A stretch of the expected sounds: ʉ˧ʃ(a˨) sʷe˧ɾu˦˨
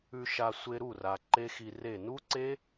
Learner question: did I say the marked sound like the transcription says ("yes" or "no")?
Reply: no